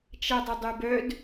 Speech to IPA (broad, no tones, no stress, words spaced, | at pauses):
t͡ʃɛdˤədˤybœd